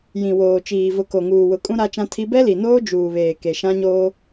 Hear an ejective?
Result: yes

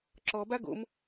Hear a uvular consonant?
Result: no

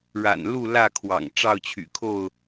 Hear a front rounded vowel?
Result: yes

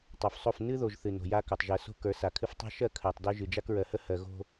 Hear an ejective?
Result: no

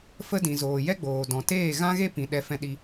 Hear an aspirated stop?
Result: no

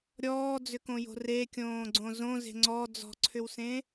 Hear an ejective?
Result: no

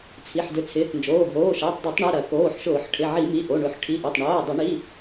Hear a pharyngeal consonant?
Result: yes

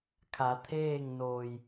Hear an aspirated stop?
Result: yes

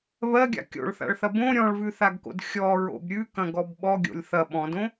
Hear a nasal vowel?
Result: yes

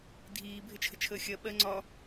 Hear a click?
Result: yes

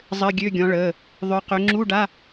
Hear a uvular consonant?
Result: yes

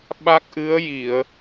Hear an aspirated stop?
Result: no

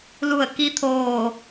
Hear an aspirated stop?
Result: yes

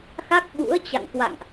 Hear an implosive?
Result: yes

